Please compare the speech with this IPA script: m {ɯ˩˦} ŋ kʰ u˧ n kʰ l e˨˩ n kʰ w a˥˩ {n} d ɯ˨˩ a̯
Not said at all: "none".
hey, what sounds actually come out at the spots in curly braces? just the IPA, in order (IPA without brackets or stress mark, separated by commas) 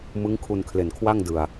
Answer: ɯ˦˥, ŋ